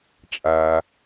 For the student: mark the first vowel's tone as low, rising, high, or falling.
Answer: low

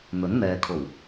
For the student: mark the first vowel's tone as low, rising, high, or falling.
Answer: rising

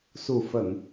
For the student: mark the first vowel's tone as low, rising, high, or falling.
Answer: low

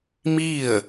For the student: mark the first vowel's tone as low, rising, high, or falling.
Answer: falling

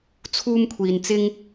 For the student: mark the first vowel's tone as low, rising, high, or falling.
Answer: high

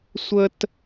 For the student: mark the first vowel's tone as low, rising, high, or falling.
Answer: high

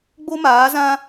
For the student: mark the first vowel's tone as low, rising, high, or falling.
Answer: high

